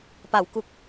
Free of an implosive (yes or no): yes